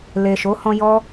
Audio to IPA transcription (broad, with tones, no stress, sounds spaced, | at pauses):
l e˨ ʃ o˨˦ h ɔ̃˧ j ɔ˧